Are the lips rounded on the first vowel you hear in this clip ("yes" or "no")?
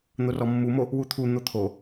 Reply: yes